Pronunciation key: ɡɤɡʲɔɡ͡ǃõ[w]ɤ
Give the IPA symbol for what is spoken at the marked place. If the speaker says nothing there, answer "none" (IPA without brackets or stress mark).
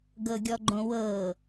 w